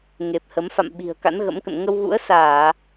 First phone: ŋ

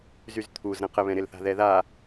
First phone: z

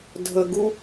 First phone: dʱ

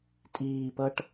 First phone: tʼ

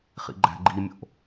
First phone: χ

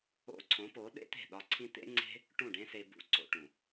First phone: o̰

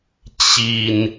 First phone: t͡ɕ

